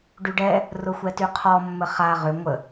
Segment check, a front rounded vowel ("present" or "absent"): present